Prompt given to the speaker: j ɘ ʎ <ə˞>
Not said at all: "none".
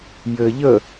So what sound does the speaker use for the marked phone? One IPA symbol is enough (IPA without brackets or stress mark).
ə